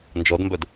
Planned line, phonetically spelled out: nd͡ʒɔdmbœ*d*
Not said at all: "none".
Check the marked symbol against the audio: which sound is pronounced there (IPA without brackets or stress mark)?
d